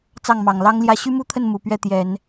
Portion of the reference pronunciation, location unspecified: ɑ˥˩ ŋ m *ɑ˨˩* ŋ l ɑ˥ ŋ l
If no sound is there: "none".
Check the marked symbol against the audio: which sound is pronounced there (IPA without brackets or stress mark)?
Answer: ɑ˨˩